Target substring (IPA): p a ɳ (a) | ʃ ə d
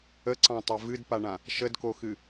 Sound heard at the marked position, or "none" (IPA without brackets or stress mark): ã